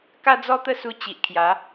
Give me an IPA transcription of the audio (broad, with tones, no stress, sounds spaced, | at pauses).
k a˦ d͡z ɔ˦ t̪ ə˥˧ s u˧ t͡ɕ i˨ ʔ kʰ j a˨˦